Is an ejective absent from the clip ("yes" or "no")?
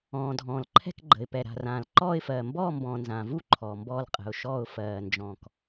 no